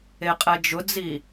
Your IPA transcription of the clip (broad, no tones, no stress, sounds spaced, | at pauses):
e qʼ ɛ d͡ʒ ʊ d͡z i